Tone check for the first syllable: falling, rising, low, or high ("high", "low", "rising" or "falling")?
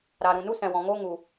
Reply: low